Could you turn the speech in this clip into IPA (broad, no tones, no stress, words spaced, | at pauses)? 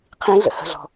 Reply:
qʰĩɮə̰ hə̤ɮɔ̤